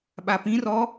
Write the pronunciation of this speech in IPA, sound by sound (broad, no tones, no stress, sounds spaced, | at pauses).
ɓ a p ĩ r ɔ